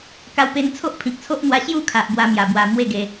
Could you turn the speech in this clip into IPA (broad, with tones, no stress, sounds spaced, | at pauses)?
k a˧ w p e˧ n t͡sʰ o˦ ʔ pʰ ĩ˨ k̚ t͡sʰ o˦ ʔ n̪ w a˧ ɕ j u˥˧ kʰ a˨ ʔ b w a˧ m j a˨˩ b w a˨˩ m w e˥˧ ɡ e˧